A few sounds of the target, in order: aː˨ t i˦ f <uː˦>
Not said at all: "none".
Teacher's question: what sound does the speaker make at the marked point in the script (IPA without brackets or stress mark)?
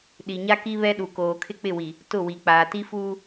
uː˦